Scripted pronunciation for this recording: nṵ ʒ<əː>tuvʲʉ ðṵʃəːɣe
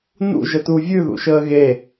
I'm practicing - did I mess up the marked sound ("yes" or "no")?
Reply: yes